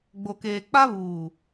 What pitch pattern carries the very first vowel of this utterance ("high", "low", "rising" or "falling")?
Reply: low